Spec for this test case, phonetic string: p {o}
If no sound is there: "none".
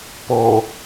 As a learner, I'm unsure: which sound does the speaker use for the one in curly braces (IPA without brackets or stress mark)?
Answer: o